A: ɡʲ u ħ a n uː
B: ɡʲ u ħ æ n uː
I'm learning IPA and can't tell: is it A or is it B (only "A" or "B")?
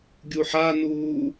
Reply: A